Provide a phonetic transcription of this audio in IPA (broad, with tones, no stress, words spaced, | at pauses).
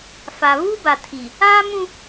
fa˨βuː˦ba˨tʰi˨ | aː˦mũ˦